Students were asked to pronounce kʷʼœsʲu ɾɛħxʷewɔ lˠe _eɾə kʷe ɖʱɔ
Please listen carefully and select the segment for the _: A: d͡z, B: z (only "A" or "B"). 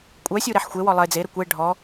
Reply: A